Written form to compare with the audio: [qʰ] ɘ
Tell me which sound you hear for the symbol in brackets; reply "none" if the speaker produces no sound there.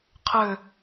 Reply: qʰ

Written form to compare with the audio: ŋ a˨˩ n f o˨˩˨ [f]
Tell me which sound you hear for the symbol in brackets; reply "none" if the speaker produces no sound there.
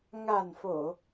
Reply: none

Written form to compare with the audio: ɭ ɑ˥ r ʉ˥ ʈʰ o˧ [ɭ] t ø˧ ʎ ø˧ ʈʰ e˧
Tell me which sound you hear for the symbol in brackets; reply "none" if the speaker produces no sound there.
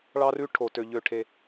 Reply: none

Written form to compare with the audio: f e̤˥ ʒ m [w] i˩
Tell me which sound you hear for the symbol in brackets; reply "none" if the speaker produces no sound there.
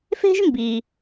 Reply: b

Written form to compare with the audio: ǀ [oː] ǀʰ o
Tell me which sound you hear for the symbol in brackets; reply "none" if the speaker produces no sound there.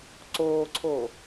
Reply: oː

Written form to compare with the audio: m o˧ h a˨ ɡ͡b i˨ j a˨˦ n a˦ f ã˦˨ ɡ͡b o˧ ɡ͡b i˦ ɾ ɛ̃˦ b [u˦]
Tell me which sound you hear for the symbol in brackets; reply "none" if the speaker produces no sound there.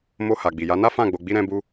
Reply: u˦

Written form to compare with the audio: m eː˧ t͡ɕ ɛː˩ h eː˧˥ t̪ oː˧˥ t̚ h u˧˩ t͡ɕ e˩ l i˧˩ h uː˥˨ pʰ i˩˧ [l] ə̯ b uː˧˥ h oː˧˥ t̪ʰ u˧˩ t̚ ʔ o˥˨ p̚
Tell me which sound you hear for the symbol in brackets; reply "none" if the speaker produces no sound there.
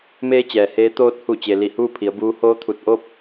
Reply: none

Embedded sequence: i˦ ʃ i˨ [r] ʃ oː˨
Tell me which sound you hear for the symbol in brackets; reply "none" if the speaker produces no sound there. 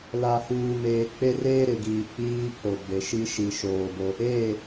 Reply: none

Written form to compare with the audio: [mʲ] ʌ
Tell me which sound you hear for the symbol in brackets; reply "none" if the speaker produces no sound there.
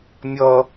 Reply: mʲ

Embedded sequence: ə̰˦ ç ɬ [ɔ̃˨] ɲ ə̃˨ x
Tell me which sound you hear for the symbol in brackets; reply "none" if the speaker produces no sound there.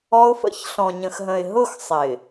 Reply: ɔ̃˨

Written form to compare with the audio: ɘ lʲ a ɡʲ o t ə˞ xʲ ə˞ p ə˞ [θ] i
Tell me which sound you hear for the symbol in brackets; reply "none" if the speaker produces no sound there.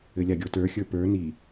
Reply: n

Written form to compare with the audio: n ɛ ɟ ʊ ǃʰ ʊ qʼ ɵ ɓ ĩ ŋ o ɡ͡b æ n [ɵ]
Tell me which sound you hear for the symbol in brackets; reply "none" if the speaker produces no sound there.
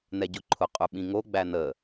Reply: ə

